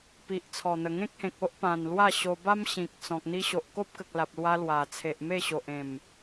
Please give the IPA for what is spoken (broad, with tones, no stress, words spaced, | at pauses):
pi˨ʔt͡sʰɔ˨˩n̪ə˨˩ ŋẽ˦k̚hẽ˨k̚o˦ʔpã˨˩n lwa˥˧ɕo˧ba˦m ɕĩ˨k̚t͡sɔ̃˨k̚ n̪i˧ɕo˨ʔko˦p̚kə˨k̚ la˨p̚lwa˧ lwa˨˩ t͡sʰe˨ʔ me˥˧ɕo˨ʔ ẽ˨˩m